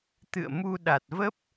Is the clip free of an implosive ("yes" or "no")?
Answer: no